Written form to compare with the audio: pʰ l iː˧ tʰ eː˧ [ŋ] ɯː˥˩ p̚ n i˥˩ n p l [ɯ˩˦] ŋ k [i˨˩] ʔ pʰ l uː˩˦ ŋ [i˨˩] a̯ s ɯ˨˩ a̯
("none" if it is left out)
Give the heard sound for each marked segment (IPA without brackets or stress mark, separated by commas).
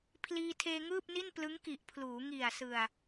ŋ, ɯ˦˥, i˨˩, i˨˩